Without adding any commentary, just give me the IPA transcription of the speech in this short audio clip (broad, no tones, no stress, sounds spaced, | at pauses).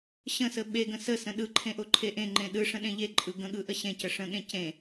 ɕ ə̃ s ə ɓ e ɡ ə̃ s ə s ə̃ ɗ ɯ ǃʰ ẽ ʔ o ǃʰ e ʔ ẽ ŋ͡ǃ ẽ ɗ ɯ ʂ ə̃ ɗ ẽ ʎ e ǃʼ ɯ ɡ ə̃ ɠ ɯ ʔ ə ɕ ẽ c ə ʂ ə̃ ɠ ẽ c ẽ